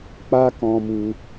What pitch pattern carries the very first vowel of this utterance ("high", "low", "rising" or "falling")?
high